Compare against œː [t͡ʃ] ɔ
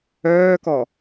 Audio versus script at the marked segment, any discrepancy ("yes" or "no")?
yes